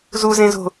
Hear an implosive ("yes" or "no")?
no